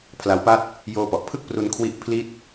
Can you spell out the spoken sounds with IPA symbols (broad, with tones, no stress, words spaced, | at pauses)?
pʰla˦˥wpa˥˩t̚ | joː˧pɔ˨˩ʔpʰɯ˥˩k̚ pru˧nkʰwi˦˥ʔ pʰli˥˩t̚